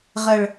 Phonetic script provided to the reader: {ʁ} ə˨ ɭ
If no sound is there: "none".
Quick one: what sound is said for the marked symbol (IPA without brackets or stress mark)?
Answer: ʁ